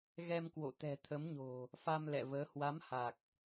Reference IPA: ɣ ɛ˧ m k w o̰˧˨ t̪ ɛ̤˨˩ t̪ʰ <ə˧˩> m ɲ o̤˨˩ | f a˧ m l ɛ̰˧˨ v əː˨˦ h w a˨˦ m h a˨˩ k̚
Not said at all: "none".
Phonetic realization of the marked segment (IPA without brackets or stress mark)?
ə˨˦